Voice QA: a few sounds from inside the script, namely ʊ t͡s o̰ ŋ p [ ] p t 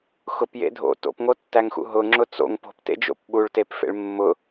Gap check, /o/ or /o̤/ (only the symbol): o̤